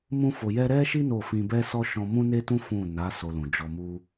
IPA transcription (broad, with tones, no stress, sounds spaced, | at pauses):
m ũ˦ f o˧ j ɛ˦ ɾ ɛ˦ ʃ i˦ n o˦˨ f ĩ˧ b ɛ˦ s ɔ˦ ʃ ɔ̃˧ m ũ˦ n e˦ t ũ˦ f ũ˦˨ n a˨˦ s o˧ l ũ˨ d͡ʒ ɔ˧ m u˦